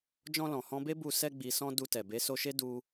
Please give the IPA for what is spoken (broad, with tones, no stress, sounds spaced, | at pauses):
d͡ʒ ɔ̃˧ l ɔ̃˨ h ɔ̃˧ b e˦ b u˧ s ɛ˧ ɡ͡b i˨ s ɔ̃˧ d u˧ t ɛ˨ b e˨˦ s o˧ ʃ e˦ d u˦